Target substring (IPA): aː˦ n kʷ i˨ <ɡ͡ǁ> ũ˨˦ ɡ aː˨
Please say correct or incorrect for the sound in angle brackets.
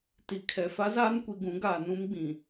incorrect